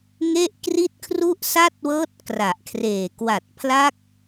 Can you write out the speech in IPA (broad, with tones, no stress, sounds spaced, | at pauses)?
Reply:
ŋ e˥˩ ʔ k r i˥˩ t̚ kʰ r u˥˩ ʔ s a˥˩ t̚ w ɤː˦˥ t̚ k r a˨˩ ʔ kʰ r eː˨˩ k w a˨˩ t̚ pʰ l a˦˥ k̚